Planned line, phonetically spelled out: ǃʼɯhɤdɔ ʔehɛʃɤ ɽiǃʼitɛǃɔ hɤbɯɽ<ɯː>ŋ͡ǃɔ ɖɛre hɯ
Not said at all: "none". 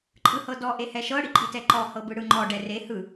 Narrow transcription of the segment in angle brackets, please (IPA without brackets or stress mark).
ɯ